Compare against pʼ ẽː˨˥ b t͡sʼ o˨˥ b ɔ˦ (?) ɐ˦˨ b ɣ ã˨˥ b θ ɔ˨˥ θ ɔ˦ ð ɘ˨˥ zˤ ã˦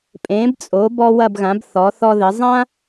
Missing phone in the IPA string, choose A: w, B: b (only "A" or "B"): A